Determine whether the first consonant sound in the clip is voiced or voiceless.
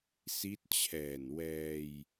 voiceless